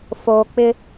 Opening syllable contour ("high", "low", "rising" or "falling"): low